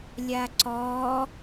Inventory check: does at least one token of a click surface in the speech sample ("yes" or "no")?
yes